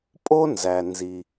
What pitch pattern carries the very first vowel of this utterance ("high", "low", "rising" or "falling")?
high